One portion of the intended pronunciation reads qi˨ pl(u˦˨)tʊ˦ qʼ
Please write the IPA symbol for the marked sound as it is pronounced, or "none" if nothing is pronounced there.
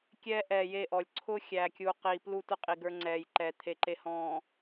u˦˨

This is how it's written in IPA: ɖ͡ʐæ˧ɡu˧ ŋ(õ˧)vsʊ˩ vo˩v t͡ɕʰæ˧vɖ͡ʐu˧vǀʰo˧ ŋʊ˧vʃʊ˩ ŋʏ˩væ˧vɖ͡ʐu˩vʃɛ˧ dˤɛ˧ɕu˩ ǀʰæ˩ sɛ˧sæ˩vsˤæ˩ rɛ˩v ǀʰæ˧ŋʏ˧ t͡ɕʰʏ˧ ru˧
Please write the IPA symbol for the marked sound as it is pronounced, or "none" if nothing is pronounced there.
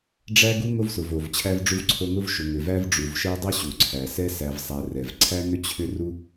o˧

